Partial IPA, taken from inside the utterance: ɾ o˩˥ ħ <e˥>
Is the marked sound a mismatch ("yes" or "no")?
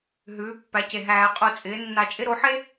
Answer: no